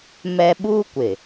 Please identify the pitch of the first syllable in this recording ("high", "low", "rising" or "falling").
high